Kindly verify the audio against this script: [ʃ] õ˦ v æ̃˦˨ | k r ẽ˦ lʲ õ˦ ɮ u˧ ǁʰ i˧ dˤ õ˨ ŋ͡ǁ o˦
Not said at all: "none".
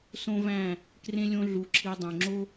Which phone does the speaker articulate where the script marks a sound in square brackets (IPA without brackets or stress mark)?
s